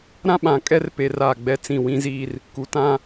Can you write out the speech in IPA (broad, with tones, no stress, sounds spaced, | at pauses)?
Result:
ɾ ã˦ ɓ ã˨ kʼ ɛ˦ r p eː˨ r aː˦˨ ɡ͡b ɛ˦ t͡s ĩ˦˨ w ĩ˦ z iː˦ r | k u˨˦ t ã˦